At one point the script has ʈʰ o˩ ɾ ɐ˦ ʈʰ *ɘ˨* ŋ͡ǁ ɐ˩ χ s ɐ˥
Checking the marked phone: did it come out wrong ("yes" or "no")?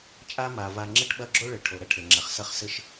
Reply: yes